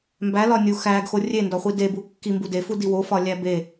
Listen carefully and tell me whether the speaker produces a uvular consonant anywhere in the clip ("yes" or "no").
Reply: yes